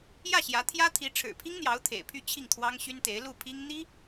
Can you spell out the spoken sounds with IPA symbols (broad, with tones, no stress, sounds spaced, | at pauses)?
j ä˥˩ ɕ j ä˧˥ t̪ʰ j ä˥ t̪ʰ i˧˥ ʈ͡ʂʰ ɻ̩˨˩ pʰ i˥ ŋ n̪ j ɑ˧˥ ʊ̯ t̪ʰ ḛ˨˩ ɪ̯ pʰ y˥˧ t͡ɕʰ i˥˩ ŋ t̪ʰ w ɑ˥ ŋ ɕ y˥ n t̪ e˧˥ ɪ̯ l u˥˩ pʰ i˥ ŋ n̪ i˥